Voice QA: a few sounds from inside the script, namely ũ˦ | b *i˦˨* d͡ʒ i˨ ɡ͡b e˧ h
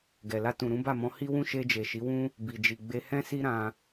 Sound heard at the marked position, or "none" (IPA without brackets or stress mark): i˨